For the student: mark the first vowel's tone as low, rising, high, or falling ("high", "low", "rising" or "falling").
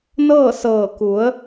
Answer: falling